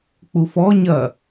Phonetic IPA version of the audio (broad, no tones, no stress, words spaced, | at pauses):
k͡pufɔ ɲɐ